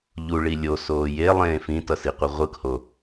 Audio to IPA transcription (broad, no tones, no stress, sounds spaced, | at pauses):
ʎ u ɭ i lʲ o s oː j e lˠ ẽː f ĩ t ʌ s i qʷ ɯ ʁʷ ɯ k h o